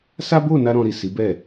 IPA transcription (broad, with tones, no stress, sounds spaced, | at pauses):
s a˦ b o˦˨ n a˧ ɾ ɔ̃˧ ɾ i˨ s i˨˦ b ɛ˦˨